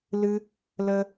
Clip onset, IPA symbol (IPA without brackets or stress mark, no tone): l